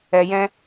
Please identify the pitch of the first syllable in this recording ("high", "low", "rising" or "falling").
low